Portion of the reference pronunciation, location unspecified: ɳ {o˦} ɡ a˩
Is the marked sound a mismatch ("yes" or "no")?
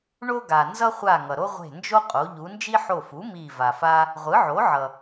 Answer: no